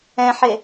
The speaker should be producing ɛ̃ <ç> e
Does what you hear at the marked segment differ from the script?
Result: yes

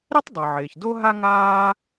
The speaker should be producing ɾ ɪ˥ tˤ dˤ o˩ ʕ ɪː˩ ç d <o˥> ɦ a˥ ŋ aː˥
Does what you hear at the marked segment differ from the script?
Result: no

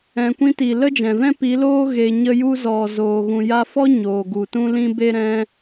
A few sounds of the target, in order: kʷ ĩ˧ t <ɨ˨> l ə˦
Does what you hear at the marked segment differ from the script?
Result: yes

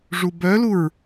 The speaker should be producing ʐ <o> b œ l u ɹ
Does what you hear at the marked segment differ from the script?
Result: yes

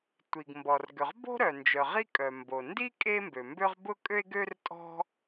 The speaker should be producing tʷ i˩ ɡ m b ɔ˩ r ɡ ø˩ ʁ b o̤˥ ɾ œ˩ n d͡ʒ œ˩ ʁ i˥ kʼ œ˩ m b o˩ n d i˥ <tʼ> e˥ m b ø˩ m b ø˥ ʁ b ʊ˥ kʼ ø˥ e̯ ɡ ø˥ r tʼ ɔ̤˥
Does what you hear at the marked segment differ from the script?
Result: yes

